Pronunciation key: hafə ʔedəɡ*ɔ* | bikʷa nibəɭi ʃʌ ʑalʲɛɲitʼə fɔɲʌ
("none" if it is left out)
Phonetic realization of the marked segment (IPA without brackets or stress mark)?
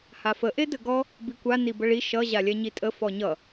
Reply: ɔ